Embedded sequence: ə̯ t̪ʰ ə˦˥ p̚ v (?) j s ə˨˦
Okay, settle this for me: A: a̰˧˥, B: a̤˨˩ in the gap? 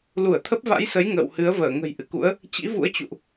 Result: A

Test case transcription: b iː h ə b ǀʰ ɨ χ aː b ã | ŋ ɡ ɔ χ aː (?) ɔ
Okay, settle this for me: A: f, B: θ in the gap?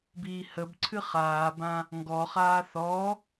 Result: B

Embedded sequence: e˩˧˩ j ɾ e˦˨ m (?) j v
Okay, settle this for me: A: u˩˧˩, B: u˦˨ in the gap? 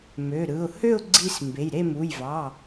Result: A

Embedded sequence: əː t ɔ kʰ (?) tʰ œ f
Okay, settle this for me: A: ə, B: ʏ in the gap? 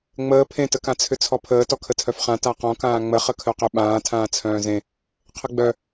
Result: A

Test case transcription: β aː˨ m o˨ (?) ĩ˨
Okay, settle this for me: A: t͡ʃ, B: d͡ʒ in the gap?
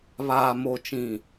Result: A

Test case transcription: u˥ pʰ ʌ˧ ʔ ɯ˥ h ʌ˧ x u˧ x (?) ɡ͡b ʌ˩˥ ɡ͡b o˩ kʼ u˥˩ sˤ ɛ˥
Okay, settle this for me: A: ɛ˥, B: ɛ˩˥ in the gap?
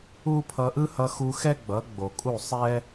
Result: A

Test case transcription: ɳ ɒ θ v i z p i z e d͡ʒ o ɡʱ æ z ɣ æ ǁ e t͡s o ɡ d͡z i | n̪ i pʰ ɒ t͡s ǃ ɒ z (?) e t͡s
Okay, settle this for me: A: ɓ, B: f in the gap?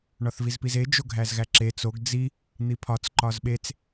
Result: A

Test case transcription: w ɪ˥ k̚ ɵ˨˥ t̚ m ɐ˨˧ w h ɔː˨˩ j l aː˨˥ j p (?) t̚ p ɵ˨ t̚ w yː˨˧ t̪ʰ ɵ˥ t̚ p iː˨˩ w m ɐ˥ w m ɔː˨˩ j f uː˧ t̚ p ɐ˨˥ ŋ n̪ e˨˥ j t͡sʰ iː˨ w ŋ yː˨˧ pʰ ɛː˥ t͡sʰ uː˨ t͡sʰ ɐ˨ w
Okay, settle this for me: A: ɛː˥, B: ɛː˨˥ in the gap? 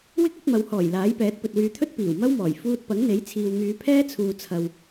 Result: B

